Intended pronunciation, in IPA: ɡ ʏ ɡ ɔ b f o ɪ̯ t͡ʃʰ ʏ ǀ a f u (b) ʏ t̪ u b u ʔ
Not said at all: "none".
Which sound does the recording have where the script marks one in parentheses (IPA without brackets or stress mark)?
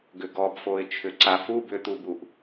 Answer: b